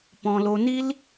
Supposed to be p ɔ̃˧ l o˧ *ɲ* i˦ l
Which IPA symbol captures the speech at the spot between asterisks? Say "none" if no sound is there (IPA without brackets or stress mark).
n